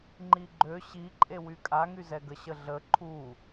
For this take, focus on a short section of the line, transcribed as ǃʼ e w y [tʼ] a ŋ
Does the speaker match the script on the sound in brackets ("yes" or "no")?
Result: no